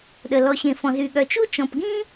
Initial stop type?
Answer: implosive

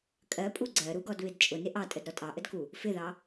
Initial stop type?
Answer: ejective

